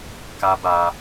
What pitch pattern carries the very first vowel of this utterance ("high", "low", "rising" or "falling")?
high